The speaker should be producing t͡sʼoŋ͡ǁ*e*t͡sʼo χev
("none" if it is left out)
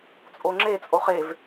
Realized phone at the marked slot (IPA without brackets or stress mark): e